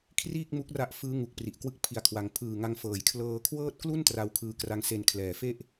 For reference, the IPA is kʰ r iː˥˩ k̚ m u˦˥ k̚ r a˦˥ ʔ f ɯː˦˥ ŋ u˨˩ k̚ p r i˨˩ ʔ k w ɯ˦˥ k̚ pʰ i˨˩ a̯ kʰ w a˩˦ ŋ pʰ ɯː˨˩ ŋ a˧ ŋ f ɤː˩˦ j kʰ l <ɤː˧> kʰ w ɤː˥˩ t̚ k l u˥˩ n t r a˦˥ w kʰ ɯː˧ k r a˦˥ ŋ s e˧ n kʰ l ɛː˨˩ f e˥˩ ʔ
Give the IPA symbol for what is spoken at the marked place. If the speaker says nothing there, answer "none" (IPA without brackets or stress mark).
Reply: ɤː˧